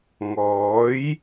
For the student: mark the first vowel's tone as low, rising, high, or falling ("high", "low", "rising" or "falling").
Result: rising